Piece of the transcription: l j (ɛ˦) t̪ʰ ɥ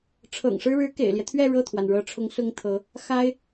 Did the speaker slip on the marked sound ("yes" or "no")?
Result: no